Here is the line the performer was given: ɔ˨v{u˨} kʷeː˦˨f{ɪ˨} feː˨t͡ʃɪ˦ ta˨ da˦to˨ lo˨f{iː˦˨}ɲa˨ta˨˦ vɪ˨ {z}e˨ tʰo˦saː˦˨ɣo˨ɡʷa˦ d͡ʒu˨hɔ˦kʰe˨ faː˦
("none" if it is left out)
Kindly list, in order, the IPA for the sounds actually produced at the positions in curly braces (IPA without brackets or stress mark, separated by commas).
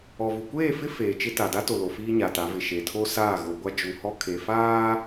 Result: u˨, ɪ˦, iː˦, ʃ